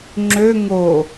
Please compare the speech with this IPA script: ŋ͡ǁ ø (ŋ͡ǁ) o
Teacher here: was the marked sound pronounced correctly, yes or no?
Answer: no